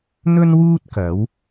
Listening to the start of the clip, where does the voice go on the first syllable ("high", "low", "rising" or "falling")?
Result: high